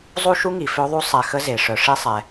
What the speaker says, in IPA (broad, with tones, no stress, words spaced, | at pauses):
zˤu˥ʃu˥ŋi˩fø˦ ðˤu˥ sˤɛ˨ xə˥ze˩ʂœ˨ ʂi˥sˤɛ˩